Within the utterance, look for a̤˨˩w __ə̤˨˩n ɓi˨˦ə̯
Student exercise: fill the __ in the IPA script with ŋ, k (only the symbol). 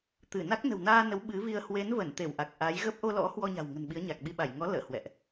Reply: ŋ